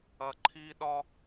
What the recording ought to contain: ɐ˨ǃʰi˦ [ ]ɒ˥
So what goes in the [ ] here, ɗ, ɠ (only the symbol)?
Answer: ɗ